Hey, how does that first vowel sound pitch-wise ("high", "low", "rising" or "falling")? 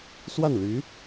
falling